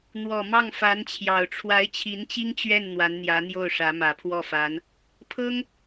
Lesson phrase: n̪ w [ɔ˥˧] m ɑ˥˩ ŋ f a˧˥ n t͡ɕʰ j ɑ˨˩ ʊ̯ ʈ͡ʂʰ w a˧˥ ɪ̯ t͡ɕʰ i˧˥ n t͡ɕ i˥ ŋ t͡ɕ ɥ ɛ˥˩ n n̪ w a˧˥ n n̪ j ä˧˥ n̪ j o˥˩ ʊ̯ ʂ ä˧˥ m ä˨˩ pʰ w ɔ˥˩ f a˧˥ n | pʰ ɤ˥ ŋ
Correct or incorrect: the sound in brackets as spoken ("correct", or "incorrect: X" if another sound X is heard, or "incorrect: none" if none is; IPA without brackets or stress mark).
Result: incorrect: ɔ˨˩